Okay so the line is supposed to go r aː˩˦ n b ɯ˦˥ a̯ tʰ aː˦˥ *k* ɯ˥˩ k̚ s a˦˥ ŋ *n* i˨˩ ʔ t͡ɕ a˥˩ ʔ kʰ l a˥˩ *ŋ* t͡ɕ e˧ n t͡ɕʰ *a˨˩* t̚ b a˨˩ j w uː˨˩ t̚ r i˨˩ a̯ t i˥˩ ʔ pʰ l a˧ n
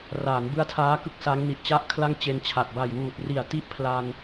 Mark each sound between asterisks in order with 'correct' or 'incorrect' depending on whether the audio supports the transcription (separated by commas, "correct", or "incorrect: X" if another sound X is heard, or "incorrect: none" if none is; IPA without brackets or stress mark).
correct, correct, correct, correct